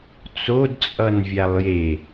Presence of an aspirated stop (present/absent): absent